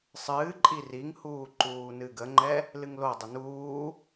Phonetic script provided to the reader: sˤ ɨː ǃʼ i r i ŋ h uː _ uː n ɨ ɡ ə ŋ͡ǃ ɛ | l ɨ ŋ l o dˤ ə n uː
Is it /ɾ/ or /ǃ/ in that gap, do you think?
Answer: ǃ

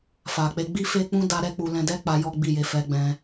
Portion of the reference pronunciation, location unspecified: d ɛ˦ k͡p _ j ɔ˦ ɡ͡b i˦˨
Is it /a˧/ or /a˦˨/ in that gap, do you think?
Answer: a˧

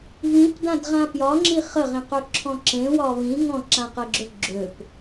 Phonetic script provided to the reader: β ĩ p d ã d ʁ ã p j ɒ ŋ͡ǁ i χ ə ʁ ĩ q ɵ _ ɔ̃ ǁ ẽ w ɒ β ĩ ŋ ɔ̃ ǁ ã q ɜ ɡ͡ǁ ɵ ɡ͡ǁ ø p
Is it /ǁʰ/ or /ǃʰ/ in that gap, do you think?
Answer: ǁʰ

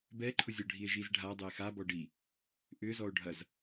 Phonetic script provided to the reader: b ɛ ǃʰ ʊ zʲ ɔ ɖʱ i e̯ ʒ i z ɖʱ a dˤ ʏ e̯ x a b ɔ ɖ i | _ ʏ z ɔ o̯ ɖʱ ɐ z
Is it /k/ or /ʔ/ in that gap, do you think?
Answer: ʔ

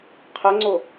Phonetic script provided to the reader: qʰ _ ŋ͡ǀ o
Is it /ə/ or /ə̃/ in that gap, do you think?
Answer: ə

